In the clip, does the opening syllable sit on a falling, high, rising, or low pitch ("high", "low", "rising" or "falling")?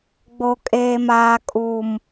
high